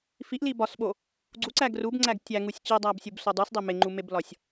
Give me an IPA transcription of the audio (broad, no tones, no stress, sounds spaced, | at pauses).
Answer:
f i ʔ l i b ɒ s ɓ o | ɡ͡ǀ u ǀ æ ɡ r u b ŋ͡ǀ æ ɡ tʲ æ ŋ u sʲ t͡ɕ i dˤ æ b sʲ u b s o dˤ u s dˤ e m e ŋ͡ǃ u m e b l ɒ sʲ